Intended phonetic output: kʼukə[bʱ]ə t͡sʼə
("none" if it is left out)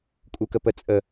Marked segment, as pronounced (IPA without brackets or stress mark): p